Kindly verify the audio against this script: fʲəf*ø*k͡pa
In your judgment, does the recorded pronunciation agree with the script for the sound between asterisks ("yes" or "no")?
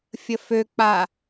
yes